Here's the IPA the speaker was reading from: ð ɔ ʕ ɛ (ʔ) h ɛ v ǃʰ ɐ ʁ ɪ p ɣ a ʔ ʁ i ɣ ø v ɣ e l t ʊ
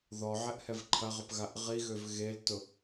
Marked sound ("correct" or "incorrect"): correct